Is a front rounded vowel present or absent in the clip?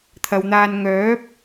present